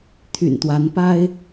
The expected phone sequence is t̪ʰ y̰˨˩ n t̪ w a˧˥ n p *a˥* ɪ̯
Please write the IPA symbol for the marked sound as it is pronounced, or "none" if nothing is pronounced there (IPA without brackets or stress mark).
a˥